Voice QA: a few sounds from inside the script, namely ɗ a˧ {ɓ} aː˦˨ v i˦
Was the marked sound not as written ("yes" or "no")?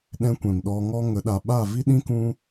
no